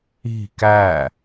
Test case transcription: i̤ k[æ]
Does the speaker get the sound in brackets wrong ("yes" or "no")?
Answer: no